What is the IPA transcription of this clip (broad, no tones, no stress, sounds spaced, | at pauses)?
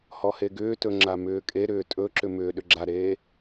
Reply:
h ɔ h e ɡ ʏː t ɵ ŋ͡ǁ a m ʏː kʼ e ɾ ʏː tʼ ɵ ǁ ʏ m ʏː ɗ ʏ ɡ͡ǁ a ɾ eː